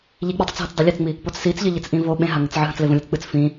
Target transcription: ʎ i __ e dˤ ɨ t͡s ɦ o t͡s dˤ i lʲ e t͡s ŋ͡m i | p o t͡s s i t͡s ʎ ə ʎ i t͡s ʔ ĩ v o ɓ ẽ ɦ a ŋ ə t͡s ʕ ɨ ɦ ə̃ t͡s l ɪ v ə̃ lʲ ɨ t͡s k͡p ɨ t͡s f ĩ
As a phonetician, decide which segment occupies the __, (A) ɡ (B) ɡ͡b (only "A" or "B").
B